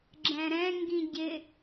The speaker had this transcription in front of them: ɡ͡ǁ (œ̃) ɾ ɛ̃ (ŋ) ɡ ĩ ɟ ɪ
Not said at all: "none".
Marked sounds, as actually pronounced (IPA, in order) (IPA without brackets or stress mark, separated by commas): ɛ̃, ŋ